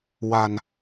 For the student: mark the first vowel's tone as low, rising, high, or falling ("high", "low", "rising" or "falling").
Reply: low